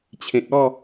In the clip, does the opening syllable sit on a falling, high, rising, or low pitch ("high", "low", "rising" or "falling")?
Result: low